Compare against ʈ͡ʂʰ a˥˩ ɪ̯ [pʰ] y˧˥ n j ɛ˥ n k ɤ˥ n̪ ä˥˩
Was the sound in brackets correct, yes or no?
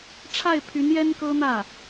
yes